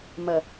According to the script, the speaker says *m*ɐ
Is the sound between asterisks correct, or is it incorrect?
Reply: correct